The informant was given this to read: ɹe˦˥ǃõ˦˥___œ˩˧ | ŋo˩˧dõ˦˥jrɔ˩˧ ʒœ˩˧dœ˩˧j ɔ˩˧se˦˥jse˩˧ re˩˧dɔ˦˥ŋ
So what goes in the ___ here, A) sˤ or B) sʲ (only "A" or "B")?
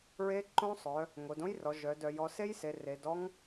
A